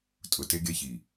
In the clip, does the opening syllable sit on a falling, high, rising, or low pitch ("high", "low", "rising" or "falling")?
low